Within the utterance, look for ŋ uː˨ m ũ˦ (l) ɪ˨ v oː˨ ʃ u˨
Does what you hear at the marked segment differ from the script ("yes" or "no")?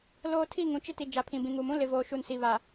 no